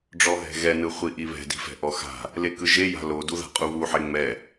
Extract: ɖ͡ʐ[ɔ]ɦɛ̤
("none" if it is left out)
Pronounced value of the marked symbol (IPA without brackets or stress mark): ɔ